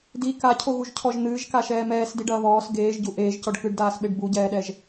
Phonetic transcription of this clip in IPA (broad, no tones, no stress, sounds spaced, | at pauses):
d i k a cʰ o ɣ u ʒ cʰ ɔ ʒ n̪ ɨː ʒ k a ʃ ɛː m ɛː s d i ɖ ɐː β ɔː s ɡ eː ʒ ɟ u ʔ eː ʒ c ɔ ɖ k ɨ ɖ d aː s ɓ e ɖ b u ɟ ɛː ɗ ɛ ʒ